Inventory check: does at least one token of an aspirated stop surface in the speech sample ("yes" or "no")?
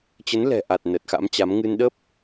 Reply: no